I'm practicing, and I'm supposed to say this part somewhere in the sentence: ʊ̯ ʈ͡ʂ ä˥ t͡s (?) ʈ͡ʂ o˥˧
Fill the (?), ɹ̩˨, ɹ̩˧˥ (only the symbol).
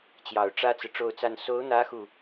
ɹ̩˨